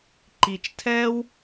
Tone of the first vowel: low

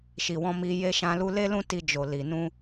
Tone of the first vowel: low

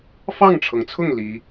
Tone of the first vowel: falling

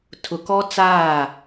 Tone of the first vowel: low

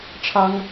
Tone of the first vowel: high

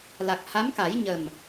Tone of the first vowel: low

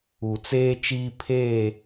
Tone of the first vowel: low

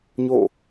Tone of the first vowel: falling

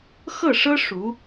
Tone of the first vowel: falling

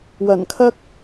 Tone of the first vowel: low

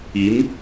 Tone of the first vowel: rising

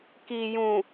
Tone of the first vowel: low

